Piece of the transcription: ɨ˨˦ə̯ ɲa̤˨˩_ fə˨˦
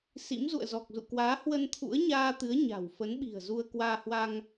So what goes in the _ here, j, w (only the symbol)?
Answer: w